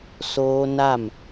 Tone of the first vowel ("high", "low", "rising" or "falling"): high